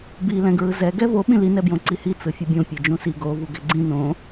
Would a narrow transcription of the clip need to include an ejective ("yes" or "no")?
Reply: no